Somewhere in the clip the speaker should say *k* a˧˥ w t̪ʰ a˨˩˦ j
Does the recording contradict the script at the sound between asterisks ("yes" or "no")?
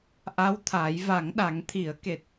yes